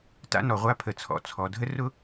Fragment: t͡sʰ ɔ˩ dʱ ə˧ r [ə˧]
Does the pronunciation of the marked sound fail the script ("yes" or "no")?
yes